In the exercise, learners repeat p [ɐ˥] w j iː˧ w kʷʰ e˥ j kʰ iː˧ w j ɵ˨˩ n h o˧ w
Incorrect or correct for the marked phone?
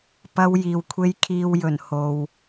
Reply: correct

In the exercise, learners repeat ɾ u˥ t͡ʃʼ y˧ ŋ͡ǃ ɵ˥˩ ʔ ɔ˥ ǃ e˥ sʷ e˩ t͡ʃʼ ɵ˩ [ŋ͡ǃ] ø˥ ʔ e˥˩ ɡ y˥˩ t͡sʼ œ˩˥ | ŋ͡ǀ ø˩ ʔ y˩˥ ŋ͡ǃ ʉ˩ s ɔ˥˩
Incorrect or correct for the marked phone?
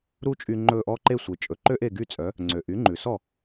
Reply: incorrect: ǃ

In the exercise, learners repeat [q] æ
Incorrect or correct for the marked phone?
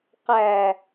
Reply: correct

